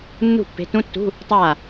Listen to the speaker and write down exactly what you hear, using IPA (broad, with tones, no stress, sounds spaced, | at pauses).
nː ṳ˦˨ pː e̤˨˦ t ũ˧˥˧ tː ṳ˧˥˧ | tˤ aː˦˨